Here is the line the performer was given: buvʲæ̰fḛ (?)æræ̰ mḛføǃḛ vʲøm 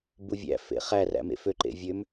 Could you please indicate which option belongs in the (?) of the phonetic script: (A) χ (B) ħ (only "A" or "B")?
A